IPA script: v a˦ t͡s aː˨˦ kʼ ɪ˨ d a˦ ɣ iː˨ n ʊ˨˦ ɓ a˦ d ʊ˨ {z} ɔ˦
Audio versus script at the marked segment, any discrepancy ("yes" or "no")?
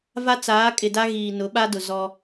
no